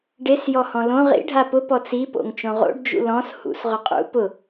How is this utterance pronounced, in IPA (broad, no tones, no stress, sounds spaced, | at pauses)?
ɖ e s j ɔ h ɔ̃ l õ ʁ ḭ ɖʱ a p ʊ p ɔ t͡s i p o̰ ŋ t͡ʃ õ ʁ o̰ ɖ d͡ʒ ṵ l ɔ̃ s h ṵ s ʁ ʊ qʼ ṵ p ʊ